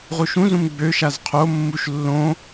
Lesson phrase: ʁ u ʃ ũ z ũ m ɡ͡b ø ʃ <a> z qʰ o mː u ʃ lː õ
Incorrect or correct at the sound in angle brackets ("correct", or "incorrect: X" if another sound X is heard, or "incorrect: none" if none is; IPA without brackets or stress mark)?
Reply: correct